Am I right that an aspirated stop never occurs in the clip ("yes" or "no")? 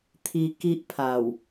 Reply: no